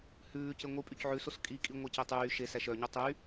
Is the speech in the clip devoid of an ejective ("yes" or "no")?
no